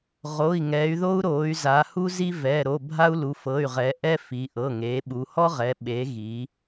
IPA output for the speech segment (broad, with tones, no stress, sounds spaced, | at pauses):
ʁ o˩˧˩ i̯ ŋ ɛ˩˧ y̯ ð o˦ u̯ ɾ o˩˧ y̯ z a˩˧ h u˦ z i˦ v ɛ˩˧˩ ɾ o˩˧˩ bʱ a˦ u̯ l u˩˧ f ɤ˩˧˩ y̯ ʁ ɛ˩˧ ʔ ɛ˦ f i˩˧ ʔ ɤ˩˧˩ ŋ e˩˧ ɓ u˩˧ h ɔ˦ ʁ ɛ˩˧ ɓ e˩˧ ɣ i˩˧